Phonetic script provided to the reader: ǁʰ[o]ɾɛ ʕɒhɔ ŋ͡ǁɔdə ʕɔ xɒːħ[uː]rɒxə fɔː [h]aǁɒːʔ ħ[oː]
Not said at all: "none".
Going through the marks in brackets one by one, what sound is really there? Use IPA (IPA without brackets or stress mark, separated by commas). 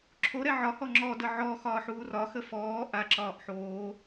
o, uː, ʔ, oː